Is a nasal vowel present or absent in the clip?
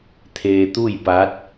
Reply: absent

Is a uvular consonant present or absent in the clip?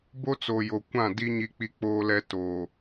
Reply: absent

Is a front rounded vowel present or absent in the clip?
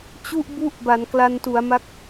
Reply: absent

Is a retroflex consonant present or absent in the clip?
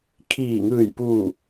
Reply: absent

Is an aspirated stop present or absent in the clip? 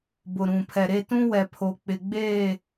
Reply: present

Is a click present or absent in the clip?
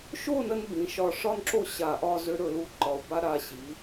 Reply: present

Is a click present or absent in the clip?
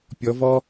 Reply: absent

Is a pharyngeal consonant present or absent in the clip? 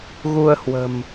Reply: absent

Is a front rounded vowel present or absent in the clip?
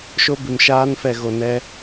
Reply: absent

